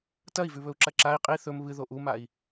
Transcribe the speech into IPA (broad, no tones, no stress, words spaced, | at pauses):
tɐi̯vʉβɵu̯ǁɐ ǁai̯ qʼi θɵm βɨðo ʔumai̯